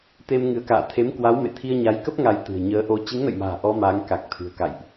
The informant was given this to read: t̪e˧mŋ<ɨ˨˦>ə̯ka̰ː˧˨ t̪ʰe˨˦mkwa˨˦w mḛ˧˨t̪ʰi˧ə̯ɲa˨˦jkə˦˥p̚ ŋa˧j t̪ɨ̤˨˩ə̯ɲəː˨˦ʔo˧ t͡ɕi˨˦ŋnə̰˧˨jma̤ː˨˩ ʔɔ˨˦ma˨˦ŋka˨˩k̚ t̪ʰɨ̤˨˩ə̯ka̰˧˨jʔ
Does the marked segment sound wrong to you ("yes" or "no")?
no